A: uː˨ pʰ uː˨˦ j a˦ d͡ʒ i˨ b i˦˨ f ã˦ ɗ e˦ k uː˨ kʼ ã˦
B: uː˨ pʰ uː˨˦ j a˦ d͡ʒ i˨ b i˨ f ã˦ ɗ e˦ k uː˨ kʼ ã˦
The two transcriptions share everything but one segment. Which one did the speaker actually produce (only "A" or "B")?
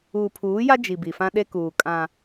B